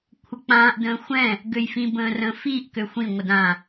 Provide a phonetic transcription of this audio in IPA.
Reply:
kʷʰ ə k͡p ãː ʔ d ə̃ː xʷ ɛ̃ | ɡ ø j f ĩ b ə̃ː r ə̃ː f iː ʔ k ø xʷ ĩ ŋʷ ə d ã

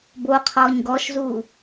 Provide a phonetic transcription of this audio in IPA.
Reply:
b o qʰ ɔː ɲ ɡ ɔ ʃ z uː

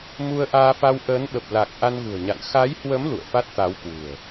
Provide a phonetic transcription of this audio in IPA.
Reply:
m u˧ ə̯ ʔ aː˧ f a˧ w ʔ əː˨˦ n ɓ ə˨˩ p̚ l a˨˩ k̚ ʔ a˧ n ɣ ṳ˨˩ ə̯ ɲ a̰˧˨ n x a˨˦ j h w ə˨˦ m l ṵ˧˨ ə̯ f a˦˥ t̚ t̪ a˨˦ w k w ṳ˨˩ ə̯

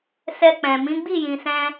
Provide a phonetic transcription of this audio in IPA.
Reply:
s ɛ˧ k͡p ɛ̃˨ m ĩ˨˦ ɡ͡b i˦˨ j ĩ˨ s ɛ̃˧

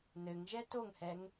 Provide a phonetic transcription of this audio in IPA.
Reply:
n ɘ ŋ ʒ ɛ t o ŋ h ɛ ŋ

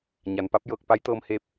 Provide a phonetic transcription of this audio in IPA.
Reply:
ɲ a˩ n p a˧˥ p̚ j ɤː˧˩ k̚ p a˧˥ j t̪ ɤː˧ m h eː˧ p̚

